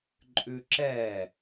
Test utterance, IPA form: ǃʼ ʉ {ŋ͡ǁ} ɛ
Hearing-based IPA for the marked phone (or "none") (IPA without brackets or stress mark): ǁ